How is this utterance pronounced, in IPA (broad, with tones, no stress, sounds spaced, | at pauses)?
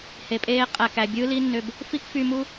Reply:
h e˨ pʼ eː˦ qʼ æ˨ k æ˨ bʲ ɯː˦ l i˦ nː ø˧ b | f i˦ k f y˧ m u˦